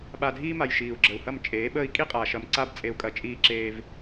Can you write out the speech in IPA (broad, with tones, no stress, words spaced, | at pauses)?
ɓa˨dʱiː˦ma˨j ʃiː˨u̯ɡ͡ǁə˨u̯hɐ˦˨m t͡ʃʼeː˨˦ɓəː˦i̯ kʼi˦qʼaː˨ʃɐ˨m ǀa˦b t͡sʼe˦u̯kʼɐ˦˨ t͡ʃʼiː˦ǁeː˦v